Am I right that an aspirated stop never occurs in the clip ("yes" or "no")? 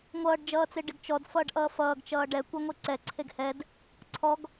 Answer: no